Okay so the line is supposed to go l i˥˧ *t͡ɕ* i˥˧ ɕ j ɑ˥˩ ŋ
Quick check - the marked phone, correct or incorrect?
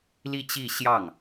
correct